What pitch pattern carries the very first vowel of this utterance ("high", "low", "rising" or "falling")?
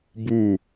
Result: falling